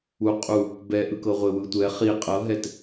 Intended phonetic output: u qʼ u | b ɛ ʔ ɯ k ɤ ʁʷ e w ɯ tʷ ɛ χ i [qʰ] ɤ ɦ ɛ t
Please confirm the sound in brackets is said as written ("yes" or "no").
no